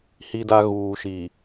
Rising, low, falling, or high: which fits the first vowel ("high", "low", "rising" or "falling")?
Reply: high